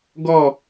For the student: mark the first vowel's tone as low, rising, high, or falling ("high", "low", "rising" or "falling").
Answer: falling